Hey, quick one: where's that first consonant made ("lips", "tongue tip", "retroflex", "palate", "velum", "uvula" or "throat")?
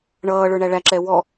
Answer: retroflex